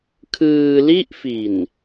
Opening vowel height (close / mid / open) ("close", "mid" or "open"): close